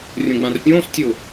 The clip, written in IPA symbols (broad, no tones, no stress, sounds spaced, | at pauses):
rʲ õ ɡ͡b ã r pʲ õː s tʲ ʊː